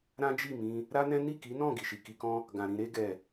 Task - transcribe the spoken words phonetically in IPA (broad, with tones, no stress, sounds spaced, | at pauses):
ɾ ã˦ d͡ʒ i˦˨ m ĩ˧ | ɾ a˦ n ɛ̃˦ n i˦˨ k i˨˦ n ɔ̃˦˨ ɡ i˨ ʃ i˨ k i˧ k ɔ̃˦ | ɡ ã˨ ɾ ĩ˧ ɾ e˦ ɡ ɛ˦˨